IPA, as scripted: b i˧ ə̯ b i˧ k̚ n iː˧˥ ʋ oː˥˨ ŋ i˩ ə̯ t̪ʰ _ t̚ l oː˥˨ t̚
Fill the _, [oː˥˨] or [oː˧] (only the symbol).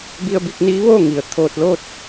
oː˧